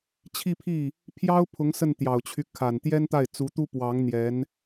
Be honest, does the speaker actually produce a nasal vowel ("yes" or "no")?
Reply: no